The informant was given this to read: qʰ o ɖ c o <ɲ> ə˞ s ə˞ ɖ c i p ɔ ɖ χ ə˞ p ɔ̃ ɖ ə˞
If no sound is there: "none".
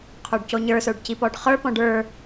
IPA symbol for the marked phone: ɲ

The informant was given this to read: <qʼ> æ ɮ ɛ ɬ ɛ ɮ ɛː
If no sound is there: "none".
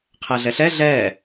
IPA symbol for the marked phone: qʰ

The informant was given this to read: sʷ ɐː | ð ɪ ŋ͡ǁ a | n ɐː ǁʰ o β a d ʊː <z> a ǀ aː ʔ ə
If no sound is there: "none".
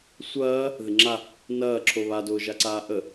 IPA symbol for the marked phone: ʒ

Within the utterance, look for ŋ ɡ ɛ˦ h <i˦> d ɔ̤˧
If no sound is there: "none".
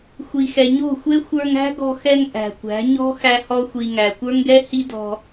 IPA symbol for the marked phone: i˦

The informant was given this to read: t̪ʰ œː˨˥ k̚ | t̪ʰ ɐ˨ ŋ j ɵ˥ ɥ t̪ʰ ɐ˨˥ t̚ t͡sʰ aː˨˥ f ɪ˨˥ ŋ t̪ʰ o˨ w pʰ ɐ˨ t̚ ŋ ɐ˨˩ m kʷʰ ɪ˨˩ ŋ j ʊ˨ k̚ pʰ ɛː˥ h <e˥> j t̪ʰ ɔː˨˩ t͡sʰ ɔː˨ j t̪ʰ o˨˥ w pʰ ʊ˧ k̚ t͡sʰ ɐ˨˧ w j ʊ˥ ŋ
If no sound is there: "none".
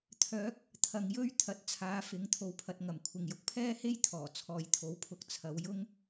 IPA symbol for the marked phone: e˥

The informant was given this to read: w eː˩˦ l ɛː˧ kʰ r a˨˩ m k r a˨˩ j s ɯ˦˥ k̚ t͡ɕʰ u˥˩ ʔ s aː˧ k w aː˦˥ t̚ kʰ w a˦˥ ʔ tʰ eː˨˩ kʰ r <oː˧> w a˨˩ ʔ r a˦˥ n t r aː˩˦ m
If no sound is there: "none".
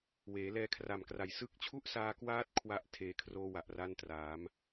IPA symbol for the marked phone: oː˧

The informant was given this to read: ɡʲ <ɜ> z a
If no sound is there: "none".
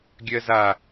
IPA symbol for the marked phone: ɜ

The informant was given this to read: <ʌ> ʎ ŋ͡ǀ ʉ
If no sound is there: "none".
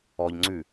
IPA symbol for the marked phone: ɔ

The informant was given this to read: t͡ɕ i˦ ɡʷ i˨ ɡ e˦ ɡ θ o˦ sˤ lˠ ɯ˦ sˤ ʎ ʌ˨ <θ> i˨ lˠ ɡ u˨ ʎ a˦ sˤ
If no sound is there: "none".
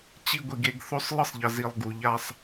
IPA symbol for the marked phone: z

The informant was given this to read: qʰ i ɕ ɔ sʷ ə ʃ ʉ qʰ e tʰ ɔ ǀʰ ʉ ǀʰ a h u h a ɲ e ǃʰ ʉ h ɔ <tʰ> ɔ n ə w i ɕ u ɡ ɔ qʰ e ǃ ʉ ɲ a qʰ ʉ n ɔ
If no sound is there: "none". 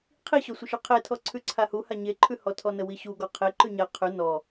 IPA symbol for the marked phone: tʰ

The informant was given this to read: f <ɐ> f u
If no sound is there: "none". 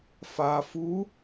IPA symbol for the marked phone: a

